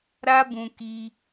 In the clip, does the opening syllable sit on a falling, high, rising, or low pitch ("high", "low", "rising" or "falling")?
high